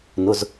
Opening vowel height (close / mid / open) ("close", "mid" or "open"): close